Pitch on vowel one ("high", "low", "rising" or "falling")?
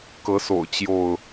rising